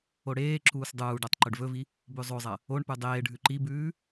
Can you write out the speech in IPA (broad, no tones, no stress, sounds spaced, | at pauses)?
o ɽ eː ǁ uː s dˤ uː ɖ o tˤ ǃ ɵ ɖ v ɵ v i | b ʉ zˤ o zˤ ɐ | o ɳ p ʉ dˤ eː ɖʱ ʉ ǃ i b ʉː